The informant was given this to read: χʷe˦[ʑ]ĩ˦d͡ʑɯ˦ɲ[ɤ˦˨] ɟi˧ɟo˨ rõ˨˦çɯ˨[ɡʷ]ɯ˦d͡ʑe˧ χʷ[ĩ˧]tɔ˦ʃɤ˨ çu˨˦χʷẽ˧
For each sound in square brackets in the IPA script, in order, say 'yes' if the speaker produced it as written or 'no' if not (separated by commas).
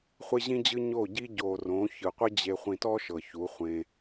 yes, no, no, yes